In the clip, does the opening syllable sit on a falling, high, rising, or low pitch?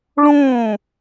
falling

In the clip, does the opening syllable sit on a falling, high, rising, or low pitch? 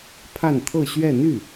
falling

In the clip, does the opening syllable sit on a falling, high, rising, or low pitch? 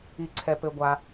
low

